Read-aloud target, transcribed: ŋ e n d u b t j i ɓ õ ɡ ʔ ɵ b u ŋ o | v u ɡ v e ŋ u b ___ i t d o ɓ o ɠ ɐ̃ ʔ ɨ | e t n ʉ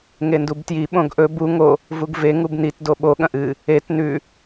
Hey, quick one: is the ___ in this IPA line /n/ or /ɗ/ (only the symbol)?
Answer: n